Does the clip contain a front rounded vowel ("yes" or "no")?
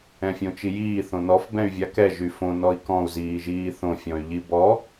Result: yes